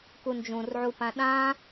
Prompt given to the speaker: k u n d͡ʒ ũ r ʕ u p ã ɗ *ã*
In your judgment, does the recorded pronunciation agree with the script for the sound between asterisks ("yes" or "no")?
yes